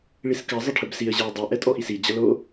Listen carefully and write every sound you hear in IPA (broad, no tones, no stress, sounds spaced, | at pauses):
ɭ i s k ɐ zˤ ə ʈʰ ə b s i ə̯ ʑ ɛ ʊ̯ dˤ i ʔ ɛ tʼ ɔ ʔ i s i d͡ʑ ɐ l o